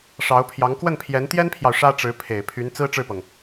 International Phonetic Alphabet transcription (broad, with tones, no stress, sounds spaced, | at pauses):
ʂ ɑ˧˥ ʊ̯ pʰ j ɑ˧˥ ŋ k w ə˥˩ n pʰ j ɛ˧˥ n t̪ j ɛ˥ n pʰ j ɑ˨ ʊ̯ ʂ ä˥ ʈ͡ʂ ɻ̩˧˥ pʰ e˨˩ ɪ̯ pʰ y˧˥ n t͡s ɹ̩˥ ʈ͡ʂ ɻ̩˥˩ p ɤ˩ ŋ